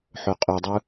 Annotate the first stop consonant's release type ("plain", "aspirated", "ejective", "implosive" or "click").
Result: ejective